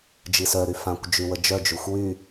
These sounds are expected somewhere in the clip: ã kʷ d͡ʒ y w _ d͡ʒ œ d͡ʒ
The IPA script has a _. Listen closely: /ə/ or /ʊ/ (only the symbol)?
ə